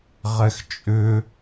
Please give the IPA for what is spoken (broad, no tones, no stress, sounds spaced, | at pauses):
ʁ ɛ x t͡ʃʼ ʏ